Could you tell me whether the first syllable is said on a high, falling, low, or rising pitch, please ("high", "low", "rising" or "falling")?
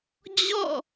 falling